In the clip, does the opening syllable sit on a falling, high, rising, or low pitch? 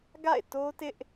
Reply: falling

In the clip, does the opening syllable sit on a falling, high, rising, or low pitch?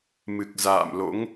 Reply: low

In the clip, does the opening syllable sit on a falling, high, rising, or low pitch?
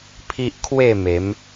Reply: high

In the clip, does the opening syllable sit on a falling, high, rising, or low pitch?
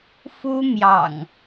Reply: high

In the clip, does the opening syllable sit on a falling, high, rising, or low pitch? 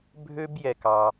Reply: high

